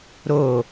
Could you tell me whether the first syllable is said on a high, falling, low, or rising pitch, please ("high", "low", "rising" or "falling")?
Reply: low